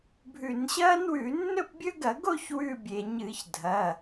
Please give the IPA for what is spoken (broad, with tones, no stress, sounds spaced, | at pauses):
bʱ ʉ˧˩˧ n ɕ ɐː˦˥ n w ʉ˧˩˧ nː ɵ˥˧ p bʲ ɵ˦˥ ɡ ɐ˧˩˧ ɡ o˥˧ ç w ʉ˧˩ bʲ e˩ ɲ ɨ˧˩˧ ç dʱ ɐ˩˧˩